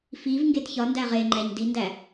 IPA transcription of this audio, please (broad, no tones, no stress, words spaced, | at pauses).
fivŋɡed çɒndæ ʁeŋ͡ǃæɲ dindæ